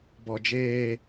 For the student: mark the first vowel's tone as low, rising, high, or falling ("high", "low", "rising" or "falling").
low